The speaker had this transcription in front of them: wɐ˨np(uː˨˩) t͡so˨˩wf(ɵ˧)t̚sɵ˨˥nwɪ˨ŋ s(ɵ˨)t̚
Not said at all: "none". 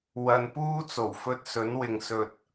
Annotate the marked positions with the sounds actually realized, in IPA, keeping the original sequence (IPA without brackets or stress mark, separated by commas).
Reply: uː˥, ɵ˧, ɵ˨